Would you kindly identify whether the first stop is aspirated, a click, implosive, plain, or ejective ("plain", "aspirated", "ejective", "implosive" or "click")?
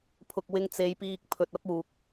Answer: aspirated